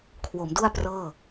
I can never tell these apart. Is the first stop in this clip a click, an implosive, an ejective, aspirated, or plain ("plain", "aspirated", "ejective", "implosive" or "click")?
aspirated